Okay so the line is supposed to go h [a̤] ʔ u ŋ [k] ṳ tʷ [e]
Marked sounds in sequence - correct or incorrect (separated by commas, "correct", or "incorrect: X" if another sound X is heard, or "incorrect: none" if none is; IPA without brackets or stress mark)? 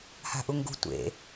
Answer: correct, incorrect: ɡ, incorrect: ḛ